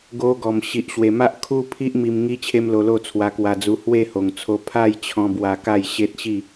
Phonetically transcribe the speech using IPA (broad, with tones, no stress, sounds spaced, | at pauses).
ɡ o˧ ɡ ɔ˨˩ m ɕ i˨ ʔ ɕ w e˨˩ m a˦ ʔ kʰ u˦ pʰ i˦ ʔ m i˧ m ŋ i˦ t͡ɕʰ e˦ m l o˧ l o˥˧ t͡sʰ w a˧ k w a˧ d͡z u˧ h w e˥˧ h o˨˩ ŋ t͡sʰ o˧ pʰ a˥˧ j t͡ɕʰ ɔ̃˧ b w a˧ k a˥˧ j ɕ e˦ t̚ ɕ i˥˧